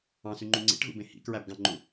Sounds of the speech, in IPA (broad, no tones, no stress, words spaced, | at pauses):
ɑ̃syŋ͡ǃũ ŋ͡ǀḭʈɣṵbẽ hḭkɹæbɡɑ̃ŋ͡ǃu